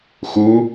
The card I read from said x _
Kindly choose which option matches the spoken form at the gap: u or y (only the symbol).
u